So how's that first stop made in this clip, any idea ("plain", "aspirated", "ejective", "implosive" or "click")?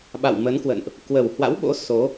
implosive